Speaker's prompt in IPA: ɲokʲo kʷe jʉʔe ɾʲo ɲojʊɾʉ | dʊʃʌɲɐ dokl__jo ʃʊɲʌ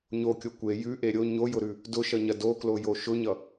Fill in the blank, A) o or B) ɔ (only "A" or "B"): A